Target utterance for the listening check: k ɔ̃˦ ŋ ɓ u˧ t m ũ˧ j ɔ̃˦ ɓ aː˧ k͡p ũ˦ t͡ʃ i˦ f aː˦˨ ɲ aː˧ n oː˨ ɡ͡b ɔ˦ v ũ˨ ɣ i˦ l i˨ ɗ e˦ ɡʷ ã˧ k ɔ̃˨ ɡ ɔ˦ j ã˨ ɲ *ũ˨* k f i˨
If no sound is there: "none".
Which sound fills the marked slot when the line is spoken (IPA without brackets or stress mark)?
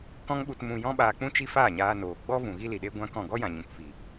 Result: ũ˨